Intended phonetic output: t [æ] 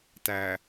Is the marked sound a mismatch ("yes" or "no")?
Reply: no